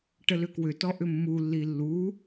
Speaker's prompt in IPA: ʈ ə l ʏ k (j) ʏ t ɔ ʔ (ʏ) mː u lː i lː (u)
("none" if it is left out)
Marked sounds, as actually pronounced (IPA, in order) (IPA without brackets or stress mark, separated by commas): w, ʏ, u